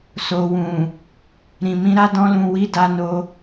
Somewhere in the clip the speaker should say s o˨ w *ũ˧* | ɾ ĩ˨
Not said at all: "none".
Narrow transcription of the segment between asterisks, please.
ũ˨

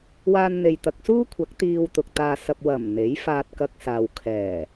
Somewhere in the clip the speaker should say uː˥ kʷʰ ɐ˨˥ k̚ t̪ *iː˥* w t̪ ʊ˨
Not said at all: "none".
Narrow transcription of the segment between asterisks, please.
iː˧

